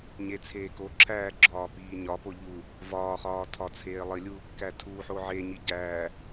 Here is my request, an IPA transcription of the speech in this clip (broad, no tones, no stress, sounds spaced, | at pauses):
ɲ e t͡sʰ eː k o ǁʰ æː ɡ͡ǁ ɒː p iː ɲ ɒ p o ʎ u | v ɒː χ ɒː tʰ ɒ t͡sʰ eː lˠ i lʲ u | k æ tʰ u ħ o ʕ e ɲ i ɟ æː